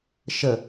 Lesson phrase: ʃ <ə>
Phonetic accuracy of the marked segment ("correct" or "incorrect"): correct